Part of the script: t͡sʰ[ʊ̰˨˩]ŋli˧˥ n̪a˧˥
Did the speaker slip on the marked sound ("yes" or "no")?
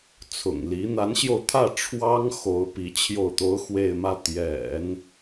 no